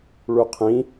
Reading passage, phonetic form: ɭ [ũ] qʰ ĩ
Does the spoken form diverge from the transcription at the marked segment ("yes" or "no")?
yes